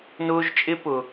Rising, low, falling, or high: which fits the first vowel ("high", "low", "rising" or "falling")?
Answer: high